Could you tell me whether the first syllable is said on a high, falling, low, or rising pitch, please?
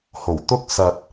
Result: low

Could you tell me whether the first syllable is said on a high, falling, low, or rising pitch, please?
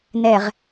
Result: low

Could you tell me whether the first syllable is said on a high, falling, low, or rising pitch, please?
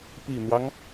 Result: low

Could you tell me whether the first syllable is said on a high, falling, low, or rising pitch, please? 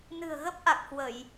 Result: low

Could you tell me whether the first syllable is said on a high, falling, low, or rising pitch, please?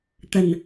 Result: low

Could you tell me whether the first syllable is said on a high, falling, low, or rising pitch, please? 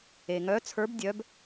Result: low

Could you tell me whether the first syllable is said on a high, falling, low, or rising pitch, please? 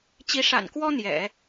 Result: rising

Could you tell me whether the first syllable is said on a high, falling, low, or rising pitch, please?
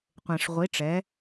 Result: low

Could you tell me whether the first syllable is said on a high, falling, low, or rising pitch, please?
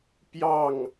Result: falling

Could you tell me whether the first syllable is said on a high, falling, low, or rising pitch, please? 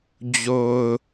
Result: low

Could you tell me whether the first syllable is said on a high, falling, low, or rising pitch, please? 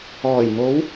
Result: low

